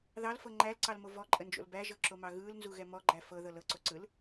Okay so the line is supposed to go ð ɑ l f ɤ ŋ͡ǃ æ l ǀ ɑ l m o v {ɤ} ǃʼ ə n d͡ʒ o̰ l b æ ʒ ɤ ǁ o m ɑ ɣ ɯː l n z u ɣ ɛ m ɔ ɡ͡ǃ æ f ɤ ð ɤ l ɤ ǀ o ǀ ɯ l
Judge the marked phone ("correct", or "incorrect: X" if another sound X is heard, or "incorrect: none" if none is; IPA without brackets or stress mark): incorrect: ɔ